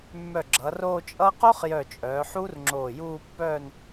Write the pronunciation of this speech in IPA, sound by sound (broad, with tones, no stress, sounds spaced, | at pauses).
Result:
mː œ˧˩ ɡ͡ǁ ʌː˩˧ r oː˥˧ t͡ʃʼ ʌː˥ q o˥ χ j œ˧˩ t͡ʃʼ œː˩˧ ħ uː˥ r ŋ͡ǁ oː˧˩ j uː˥˧ pː œː˥˧ n